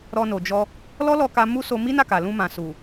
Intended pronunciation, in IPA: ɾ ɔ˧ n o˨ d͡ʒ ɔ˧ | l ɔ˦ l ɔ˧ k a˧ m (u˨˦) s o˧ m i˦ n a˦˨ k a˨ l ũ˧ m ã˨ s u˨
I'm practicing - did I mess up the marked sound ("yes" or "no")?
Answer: yes